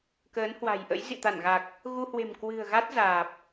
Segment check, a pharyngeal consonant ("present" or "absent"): absent